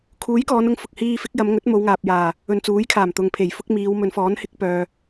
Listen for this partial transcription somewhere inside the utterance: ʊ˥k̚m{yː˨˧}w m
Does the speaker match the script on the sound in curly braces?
no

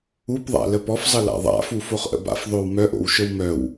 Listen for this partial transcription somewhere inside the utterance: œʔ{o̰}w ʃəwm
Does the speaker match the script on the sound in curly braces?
yes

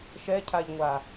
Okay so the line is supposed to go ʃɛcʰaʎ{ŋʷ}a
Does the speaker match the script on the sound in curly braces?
yes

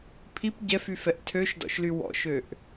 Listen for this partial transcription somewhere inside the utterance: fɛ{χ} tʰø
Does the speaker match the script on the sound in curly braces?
no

